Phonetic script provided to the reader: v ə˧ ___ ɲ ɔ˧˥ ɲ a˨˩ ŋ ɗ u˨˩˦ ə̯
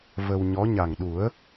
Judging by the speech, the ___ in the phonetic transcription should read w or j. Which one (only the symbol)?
w